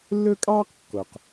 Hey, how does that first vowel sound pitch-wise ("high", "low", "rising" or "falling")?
high